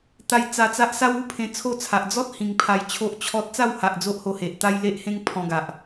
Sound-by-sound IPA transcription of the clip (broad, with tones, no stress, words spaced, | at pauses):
t̪a˧j t͡sa˧t͡sa˦ʔ sa˦wu˦pʰẽ˧ t͡sʰo˥˧t͡sʰa˨ʔ d͡zɔ˦t̚ hĩ˧ŋpʰa˧jt͡ɕʰo˦ʔ t͡ɕʰɔ˦t̚ t͡sa˥˧wha˨ʔ d͡zo˦ʔho˧he˨ʔt̪a˦j le˦ʔhẽ˦ŋ pʰɔ̃˧ɡa˨ʔ